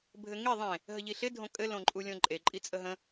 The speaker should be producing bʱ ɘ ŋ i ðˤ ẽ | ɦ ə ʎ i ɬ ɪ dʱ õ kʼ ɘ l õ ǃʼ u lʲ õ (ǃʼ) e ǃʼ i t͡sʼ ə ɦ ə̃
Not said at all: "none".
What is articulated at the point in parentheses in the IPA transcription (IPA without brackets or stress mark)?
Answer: ǃʼ